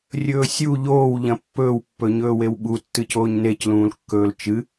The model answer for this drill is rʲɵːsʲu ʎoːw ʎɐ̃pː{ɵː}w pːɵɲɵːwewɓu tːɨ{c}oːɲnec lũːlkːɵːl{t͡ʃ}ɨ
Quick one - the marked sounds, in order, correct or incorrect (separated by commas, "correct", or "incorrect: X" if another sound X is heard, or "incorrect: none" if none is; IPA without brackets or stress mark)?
correct, correct, correct